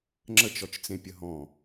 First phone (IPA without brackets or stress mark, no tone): ŋ͡ǁ